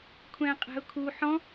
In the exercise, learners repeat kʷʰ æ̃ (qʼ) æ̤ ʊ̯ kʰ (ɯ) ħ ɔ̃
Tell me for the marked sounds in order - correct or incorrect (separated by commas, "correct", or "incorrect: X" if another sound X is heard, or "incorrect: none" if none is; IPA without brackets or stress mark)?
correct, incorrect: u